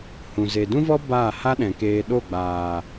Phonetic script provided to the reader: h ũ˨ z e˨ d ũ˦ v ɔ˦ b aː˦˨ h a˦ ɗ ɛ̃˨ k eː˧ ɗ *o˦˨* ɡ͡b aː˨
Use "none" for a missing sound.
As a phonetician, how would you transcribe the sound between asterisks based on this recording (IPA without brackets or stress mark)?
o˦˨